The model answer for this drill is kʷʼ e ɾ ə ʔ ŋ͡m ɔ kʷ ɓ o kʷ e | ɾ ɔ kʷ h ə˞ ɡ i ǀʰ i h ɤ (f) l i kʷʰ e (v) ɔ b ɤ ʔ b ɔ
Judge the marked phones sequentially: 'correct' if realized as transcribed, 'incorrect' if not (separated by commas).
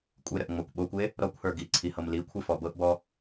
incorrect, incorrect